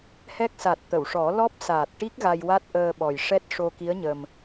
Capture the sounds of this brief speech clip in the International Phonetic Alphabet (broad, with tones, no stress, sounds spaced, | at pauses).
h ɛ˦˥ k̚ s a˨˩ t̚ t̪ ə˨˩˨ w ʂ ɔ˨˩˦ l ɔ˦˥ p̚ s aː˨˩ t̚ ʈ i˦˥ k̚ ɣ a˧ j w a˦˥ t̚ ʔ əː˧ ɓ ɔ˨˩ j ʂ ɛ˦˥ t̚ ʂ o˧ k i˧˥ ə̯ ɲ ə˨˩ m